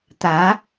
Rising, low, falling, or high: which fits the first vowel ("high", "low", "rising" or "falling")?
rising